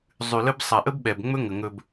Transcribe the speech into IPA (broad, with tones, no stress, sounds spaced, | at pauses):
zˤ ʉ˨ l ə˦ b sˤ a˨ ʔ ə˦ b ɓ ɛ˨ b ŋ͡m ɵ˦ ŋ ə˨ ŋ ɵ˨ b